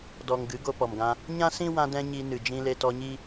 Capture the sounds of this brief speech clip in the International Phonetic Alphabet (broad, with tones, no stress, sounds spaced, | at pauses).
d ɔ˨ ŋ ɡ ɨ˨˦ ɡ o˧ p ɔ˨ m ɡ ã˧ | ɲ ã˦ s ĩ˦ w ã˧ d ɛ̃˧ ɲ i˧ n ɨ˨ d͡ʒ ĩ˧ l e˧ t ɔ˧ ɲ i˦